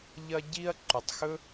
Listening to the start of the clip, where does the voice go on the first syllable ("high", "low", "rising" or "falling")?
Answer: high